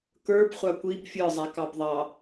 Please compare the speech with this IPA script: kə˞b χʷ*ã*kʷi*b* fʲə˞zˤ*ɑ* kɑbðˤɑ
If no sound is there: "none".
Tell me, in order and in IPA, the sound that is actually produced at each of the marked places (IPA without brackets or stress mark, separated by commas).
a, b, a